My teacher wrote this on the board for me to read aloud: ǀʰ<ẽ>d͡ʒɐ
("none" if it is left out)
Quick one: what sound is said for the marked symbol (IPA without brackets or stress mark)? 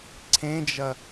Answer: ẽ